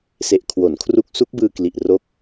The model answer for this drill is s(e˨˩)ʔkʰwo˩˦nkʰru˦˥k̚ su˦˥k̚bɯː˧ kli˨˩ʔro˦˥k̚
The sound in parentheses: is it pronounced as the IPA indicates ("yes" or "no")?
yes